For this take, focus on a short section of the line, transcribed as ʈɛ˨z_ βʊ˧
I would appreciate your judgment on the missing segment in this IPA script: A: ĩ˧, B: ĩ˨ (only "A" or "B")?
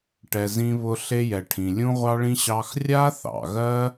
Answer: A